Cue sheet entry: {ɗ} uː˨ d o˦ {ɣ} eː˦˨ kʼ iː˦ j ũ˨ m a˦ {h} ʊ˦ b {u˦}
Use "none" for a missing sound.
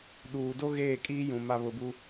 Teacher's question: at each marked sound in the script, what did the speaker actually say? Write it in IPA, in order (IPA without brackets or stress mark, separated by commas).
ɗ, ɣ, β, u˦